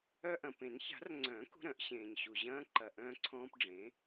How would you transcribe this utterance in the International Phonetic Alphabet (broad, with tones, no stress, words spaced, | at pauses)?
œ˦ʔɐ̃˨ pẽ˨˩˦nça̤˨˩˦rŋ͡ǀœ̃ː˨˩˦k ṳ˦ɾœ̃˨˩˦ʔɕẽː˨ɲɕu˨ ʑɐ̃ː˦ǃɐ˨ ʔœ̃ː˦ǀʰɔ̃ː˦p ɖ͡ʐẽ˩˥